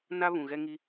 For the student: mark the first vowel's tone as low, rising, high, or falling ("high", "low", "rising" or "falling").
high